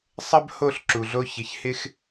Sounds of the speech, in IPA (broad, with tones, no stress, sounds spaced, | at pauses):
sˤ ɐ˥ b h o˥˩ ɬ ǁ u˩ ɮ o˧ ç ɪ˩ ç h ɪ˥ x